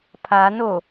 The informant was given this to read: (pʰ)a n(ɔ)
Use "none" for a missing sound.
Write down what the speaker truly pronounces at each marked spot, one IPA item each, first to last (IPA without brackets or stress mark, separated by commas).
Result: pʰ, o